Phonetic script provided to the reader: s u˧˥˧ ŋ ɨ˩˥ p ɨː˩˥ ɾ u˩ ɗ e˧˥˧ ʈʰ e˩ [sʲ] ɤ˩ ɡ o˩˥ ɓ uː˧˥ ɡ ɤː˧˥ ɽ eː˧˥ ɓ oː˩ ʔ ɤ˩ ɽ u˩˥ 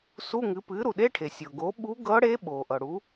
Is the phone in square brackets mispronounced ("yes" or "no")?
no